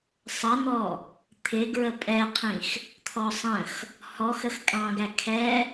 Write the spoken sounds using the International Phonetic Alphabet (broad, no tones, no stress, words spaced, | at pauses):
sˤʌn̪ɔ | t̪ʰɪɡɹə pʼɛqʰĩx | t̪ʰɔsˤə̃x | hɔx əxkʼɑ̃ɡæ kʰɛ